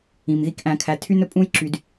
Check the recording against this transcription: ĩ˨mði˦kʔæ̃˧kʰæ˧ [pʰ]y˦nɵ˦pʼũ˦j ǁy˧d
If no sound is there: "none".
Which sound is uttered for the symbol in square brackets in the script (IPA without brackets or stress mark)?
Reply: tʰ